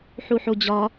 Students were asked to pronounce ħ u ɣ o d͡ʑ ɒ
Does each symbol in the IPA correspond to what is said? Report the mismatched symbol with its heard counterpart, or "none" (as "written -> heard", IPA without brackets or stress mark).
ɣ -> ħ